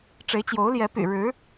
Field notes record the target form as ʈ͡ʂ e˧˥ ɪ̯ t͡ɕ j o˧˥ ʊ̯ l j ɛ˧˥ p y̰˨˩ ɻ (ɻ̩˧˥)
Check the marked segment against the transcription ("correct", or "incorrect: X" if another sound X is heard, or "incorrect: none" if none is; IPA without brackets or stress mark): correct